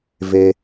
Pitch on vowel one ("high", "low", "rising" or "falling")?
high